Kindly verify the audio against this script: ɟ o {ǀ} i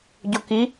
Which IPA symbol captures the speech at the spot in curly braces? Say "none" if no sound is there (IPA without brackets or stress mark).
k